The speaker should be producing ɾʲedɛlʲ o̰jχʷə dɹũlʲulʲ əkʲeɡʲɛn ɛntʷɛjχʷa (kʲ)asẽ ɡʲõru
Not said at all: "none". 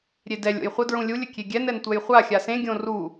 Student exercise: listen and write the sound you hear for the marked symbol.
xʲ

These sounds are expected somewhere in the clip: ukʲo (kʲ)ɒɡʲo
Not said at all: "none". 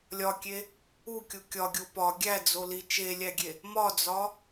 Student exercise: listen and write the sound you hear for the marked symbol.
kʲ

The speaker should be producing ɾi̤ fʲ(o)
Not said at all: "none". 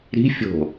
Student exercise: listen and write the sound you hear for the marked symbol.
o̤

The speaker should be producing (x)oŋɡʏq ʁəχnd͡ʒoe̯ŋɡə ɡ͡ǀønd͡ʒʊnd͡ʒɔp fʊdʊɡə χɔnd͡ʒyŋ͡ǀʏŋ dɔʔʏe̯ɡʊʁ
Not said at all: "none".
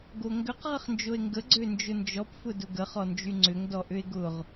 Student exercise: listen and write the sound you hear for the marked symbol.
ɡ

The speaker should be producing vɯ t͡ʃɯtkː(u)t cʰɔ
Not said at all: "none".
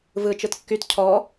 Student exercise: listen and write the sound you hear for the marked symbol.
y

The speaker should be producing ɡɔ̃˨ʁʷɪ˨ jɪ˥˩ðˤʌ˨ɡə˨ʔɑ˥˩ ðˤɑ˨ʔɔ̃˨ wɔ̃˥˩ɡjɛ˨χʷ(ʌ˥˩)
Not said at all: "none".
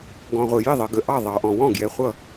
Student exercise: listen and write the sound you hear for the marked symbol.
ʌ˥˩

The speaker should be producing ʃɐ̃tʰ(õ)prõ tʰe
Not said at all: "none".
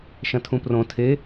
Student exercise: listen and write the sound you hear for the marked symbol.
ũ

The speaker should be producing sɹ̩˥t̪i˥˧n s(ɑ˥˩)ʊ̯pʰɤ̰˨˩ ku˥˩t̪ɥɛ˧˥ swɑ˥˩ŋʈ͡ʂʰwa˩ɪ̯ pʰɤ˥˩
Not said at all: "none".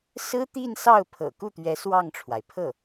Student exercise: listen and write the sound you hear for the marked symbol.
ɑ˥˩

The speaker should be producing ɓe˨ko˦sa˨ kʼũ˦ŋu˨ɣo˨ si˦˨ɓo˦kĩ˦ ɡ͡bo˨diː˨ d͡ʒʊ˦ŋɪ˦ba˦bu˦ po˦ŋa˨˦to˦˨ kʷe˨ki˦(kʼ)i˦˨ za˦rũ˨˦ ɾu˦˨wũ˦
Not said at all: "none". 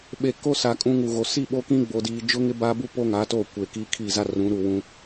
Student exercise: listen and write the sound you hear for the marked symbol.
kʰ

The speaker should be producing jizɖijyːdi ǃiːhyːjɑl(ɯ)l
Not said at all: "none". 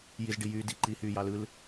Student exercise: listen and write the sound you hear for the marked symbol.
ɯ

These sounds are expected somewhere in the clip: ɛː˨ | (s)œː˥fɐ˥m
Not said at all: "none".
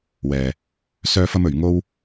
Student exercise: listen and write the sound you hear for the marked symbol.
s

